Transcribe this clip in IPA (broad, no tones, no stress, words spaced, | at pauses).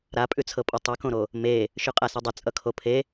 ɾapʼʉt͡sʰɤpʼʌ tˤukõɾo | me | ʃʉqʼasʌdˤʌ t͡sʼʌkʰopʰe